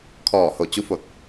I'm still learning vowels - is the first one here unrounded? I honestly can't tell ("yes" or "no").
no